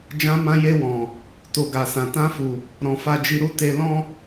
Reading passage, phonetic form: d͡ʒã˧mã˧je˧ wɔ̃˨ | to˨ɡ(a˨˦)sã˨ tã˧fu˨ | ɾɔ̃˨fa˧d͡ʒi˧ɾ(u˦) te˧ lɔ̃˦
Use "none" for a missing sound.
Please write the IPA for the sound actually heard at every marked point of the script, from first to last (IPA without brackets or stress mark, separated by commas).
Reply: a˨, u˦